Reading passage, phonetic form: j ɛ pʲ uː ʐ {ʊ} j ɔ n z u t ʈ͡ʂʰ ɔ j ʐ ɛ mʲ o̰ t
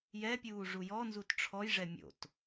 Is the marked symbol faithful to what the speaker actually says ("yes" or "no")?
no